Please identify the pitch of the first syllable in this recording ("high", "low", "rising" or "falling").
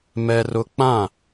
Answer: high